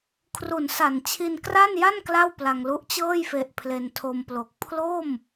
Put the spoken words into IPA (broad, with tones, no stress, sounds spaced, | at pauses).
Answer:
kʰ r u˨˩ n s a˨˩ n t͡ɕʰ i˧ n k r a˥˩ n j a˥˩ n k l a˥˩ w p l a˧ ŋ l u˦˥ ʔ t͡ɕ ɤː˥˩ j f e˨˩ ʔ pʰ l e˧ n tʰ o˧ m p l o˨˩ k̚ pʰ l o˥˩ m